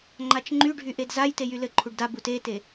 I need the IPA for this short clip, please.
ŋ͡ǃ a t͡ʃ ŋ͡ǃ y ɖʱ y ʔ e d z a j t e j y l ɘ ǃʰ u ɖ d a b u t e t e

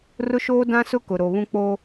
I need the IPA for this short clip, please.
r ʊ˦ ʃ oː˦ d ã˦ s ʊ˦ k ʊ˨ ɾ o˨ β ũ˦ k͡p o˦

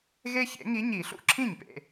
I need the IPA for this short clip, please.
ɣ e˦ ç ḛ˨˩˦ ŋ i˨˥ ɲ i˨˩˦ ɬ ṵ˦ ǁʰ ĩ˥˩ ɲ p ḛ˨

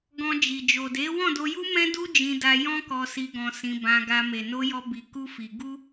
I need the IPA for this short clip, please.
ɡ ɔ̃˧ d͡ʒ i˨ d͡ʒ o˨ d e˨˦ w ɔ̃˦˨ d o˧ j u˦ m ɛ̃˦ d u˦ d͡ʒ ĩ˧ d a˧ j ɔ̃˦ k ɔ˧ s i˧ ɡ ɔ̃˧ s ĩ˧ b ã˧ ɡ a˧ m e˨ n o˧ j ɔ˧ b i˧ k u˦ f i˧ ɡ u˦

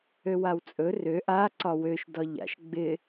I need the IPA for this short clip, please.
ø w a w t͡sʼ ɵ r ø ʔ a ǀ ɒ w ø ʃ d ɒ ʎ a̰ ʃ ɡ͡b ɪ

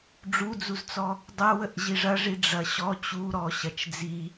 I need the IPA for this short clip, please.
ɖ͡ʐ u d͡z u z t͡s ɔ | dˤ ɐ w ə ʔ ʑ i ʐ ɐ ʐ i ɖ͡ʐ ɐ ɕ ɔ t͡ɕ u ɾ ɔ ɕ ɐ t͡ʃ d͡z i

